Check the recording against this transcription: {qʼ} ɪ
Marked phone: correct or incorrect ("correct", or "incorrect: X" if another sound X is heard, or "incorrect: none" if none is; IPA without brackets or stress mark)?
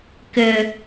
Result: incorrect: k